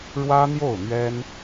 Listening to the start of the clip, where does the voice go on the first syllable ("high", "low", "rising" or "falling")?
high